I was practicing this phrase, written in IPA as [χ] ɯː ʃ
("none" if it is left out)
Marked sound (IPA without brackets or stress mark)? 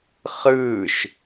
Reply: χ